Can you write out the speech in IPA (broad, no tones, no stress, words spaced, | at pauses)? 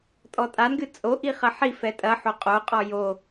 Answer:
tʼɔtʼanɡɨ t͡sʼoʔi χɐħifɛ tʼɐ ħoqʼoqʼɔ jo